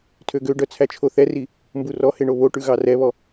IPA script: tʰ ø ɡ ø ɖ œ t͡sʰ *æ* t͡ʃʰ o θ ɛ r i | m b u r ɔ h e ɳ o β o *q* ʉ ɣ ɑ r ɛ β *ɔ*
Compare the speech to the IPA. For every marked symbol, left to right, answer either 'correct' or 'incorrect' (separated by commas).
correct, incorrect, correct